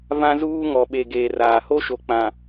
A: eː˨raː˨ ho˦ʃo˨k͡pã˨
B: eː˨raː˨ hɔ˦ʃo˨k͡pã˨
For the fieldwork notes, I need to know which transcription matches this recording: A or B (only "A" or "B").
A